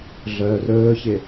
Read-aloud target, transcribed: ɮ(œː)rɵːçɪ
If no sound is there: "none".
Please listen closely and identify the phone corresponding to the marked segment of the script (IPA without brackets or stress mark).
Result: œː